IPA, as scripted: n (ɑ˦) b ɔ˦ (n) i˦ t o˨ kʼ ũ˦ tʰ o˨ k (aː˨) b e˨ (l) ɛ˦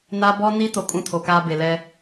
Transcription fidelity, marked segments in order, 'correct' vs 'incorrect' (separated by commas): incorrect, correct, incorrect, correct